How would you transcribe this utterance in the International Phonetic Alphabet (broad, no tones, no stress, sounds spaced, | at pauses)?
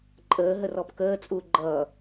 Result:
ǃʼ əː ɦ ə r ɔ p k əː t͡sʼ uː ɡ͡ǃ ʌ